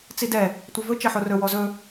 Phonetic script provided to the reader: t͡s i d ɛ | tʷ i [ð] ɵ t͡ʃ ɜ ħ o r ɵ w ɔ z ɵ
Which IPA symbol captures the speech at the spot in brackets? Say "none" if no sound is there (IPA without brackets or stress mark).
v